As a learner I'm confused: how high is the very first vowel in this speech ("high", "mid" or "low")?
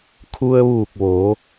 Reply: high